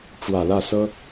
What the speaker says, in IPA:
ʈ͡ʂ w ä˨˩ l ä˥˩ s ɤ˥

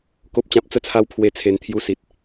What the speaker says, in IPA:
k o˨ p̚ t͡ɕ ã˨ p̚ t͡s ə˧ t͡sʰ a˧ w pʰ w e˧ t͡sʰ e˨˩ n t̪ʰ j u˧ s i˨ t̚

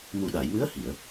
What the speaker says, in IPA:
m u˨˩ ɗ a˨˩˨ j m ɨ˧˥ ə̯ h i˨˩˨ ə̯

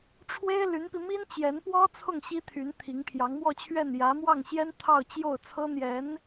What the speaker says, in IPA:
ʈ͡ʂʰ w e˥ ɪ̯ l y˧˥ n p i˧ m i˥ n t͡ɕ j ɛ˧˥ n p w ɔ˥ t͡sʰ ʊ˥˩ ŋ ɕ i˥ t̪ʰ y˧˥ n t̪ʰ i˧˥ ŋ pʰ j ɑ˧˥ ŋ m w ɔ˥˧ t͡ɕʰ ɥ ɛ˥˩ n j ä˧˥ m w ɑ˥˩ ŋ ɕ j ɛ˥ n t̪ʰ ɑ˥˧ ʊ̯ t͡ɕ j o˥˩ ʊ̯ t͡sʰ ɤ˥ n̪ j ɛ˧˥ n

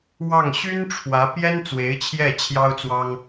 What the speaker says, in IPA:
w ɑ˥˩ ŋ ɕ y˥ n ʈ͡ʂʰ w ä˧˥ p j ɛ˥ n t͡s w e˧˥ ɪ̯ t͡ɕʰ j ɛ˥˩ t͡ɕʰ j ɑ˥ ʊ̯ t͡s w ɑ˥ ŋ

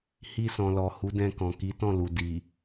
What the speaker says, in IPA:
h i˧ s ɔ̃˨ l ɔ˨ h u˨˦ d ɛ̃˧ k ɔ̃˨ k i˨˦ t ɔ̃˦˨ l u˨ d i˨

